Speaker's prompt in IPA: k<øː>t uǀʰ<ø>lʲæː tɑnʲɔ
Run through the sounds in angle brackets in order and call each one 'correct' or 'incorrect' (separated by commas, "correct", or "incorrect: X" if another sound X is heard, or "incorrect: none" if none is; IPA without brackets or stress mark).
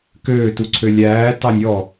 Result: correct, correct